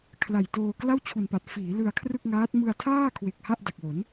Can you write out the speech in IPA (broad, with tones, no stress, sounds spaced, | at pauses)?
kʰ l a˨˩ j t oː˧ k l a˥˩ w t͡ɕʰ u˨˩ n p a˨˩ t̚ f iː˩˦ l ɯ˧ a̯ kʰ r ɯ˥˩ k̚ ŋ aː˦˥ t̚ m ɯ˧ a̯ tʰ aː˥˩ kʰ w e˨˩ k̚ h a˥˩ ʔ d a˨˩ k̚ w o˩˦ n